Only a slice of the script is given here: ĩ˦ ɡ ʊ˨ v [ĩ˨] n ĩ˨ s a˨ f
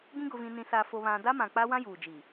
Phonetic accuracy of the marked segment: correct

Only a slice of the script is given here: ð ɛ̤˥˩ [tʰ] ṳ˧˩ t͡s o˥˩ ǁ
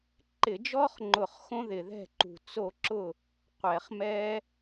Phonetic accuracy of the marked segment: incorrect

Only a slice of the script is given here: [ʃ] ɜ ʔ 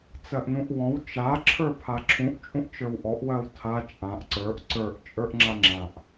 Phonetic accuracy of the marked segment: incorrect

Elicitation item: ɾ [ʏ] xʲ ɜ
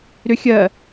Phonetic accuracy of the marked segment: correct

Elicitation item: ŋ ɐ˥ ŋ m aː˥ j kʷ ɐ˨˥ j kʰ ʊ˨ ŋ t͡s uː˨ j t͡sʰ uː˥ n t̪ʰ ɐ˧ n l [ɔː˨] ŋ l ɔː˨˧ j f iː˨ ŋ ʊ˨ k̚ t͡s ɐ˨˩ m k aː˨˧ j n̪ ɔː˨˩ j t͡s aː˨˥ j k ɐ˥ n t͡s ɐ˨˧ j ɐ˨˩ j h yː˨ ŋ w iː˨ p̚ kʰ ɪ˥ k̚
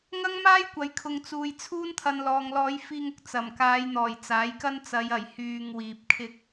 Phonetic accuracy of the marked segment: correct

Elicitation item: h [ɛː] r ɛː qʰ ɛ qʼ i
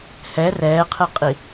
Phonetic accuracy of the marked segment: incorrect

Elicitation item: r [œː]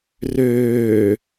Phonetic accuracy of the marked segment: incorrect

